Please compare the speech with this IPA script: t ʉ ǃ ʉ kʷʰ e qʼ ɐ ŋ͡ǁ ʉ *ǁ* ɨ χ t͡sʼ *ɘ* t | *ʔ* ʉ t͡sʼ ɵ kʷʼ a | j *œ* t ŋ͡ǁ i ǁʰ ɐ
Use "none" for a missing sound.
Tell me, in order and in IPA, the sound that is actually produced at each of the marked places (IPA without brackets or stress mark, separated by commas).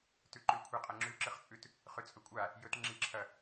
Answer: ǁ, ʉ, χ, ɵ